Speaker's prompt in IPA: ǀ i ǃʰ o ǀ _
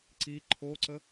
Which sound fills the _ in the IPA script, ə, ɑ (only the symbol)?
ə